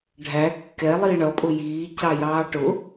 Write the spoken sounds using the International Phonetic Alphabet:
ɖʱæ kːɛ lˠiːɳʌpʼʊ jiː cɑjɑːʈʊ

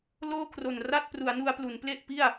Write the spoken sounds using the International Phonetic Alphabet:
loː˥˩kʰro˨˩n ra˥˩t̚ pru˩˦a̯nu˧a̯plu˩˦n ple˥˩ʔpi˥˩a̯

